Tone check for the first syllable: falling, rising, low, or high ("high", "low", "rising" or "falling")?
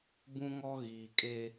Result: high